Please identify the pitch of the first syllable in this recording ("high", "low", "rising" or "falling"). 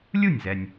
falling